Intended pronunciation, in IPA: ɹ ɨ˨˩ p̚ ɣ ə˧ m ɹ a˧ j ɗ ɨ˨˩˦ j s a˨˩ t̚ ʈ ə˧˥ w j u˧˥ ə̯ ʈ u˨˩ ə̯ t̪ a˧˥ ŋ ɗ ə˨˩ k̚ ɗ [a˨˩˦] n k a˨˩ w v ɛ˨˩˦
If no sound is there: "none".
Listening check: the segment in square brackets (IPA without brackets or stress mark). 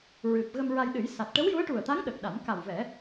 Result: a˨˩˦